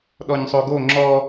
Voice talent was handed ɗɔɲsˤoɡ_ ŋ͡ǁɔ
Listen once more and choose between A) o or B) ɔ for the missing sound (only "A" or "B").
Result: A